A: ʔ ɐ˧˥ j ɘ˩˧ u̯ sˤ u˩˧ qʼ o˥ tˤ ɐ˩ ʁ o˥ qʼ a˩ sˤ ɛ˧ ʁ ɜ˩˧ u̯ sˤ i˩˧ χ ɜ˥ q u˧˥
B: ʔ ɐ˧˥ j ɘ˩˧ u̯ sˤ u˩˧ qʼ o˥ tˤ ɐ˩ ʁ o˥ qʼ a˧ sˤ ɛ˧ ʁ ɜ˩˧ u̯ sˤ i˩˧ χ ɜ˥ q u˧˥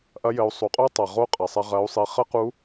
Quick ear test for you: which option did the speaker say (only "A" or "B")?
A